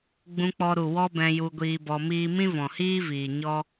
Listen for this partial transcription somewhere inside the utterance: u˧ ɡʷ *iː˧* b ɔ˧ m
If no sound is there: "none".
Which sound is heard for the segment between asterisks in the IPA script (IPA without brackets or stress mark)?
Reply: iː˧